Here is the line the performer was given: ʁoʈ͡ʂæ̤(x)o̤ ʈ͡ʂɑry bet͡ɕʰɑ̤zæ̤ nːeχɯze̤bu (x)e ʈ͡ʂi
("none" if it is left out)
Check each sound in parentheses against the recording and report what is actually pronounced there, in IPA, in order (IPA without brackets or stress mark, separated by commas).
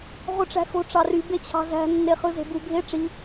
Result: x, ɡʱ